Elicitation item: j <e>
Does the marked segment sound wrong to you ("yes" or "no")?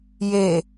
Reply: no